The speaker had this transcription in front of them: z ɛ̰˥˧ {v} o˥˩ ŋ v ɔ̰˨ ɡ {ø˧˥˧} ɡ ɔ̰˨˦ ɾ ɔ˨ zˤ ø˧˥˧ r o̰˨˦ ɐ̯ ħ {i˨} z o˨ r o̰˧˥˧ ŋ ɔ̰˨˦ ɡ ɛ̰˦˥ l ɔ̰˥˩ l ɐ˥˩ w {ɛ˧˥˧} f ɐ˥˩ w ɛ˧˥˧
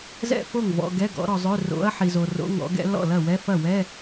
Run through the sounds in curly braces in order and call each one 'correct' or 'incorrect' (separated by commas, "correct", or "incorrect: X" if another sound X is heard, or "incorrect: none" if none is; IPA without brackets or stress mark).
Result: incorrect: f, incorrect: ɛ˧˥˧, correct, correct